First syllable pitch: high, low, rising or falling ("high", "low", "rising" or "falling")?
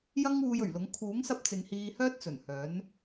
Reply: high